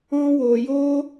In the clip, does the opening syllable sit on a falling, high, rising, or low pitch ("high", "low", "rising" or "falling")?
high